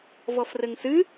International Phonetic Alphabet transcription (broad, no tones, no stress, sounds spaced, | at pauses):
v ɔ f r ɘ ŋ s ɨ